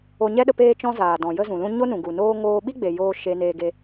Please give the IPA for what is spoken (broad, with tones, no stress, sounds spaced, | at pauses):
o˧ ɲ ɛ˦ ɗ ə˧ p eː˦ t͡ʃ ɔ̃˦ z aː˨ d ɔ̃˨ j ə˦ z ũ˨ l ũ˦ ɲ o˦ n ũ˨ ɡ u˨ n oː˦ ŋ oː˧ ɓ i˦ ɡ͡b e˨ j oː˦ ʃ e˧ n eː˧ ɡ e˧